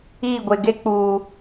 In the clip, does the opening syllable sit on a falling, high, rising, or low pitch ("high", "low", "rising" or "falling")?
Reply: falling